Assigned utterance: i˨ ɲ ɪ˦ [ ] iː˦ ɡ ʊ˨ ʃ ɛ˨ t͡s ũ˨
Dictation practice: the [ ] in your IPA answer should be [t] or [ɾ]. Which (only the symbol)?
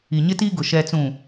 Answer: t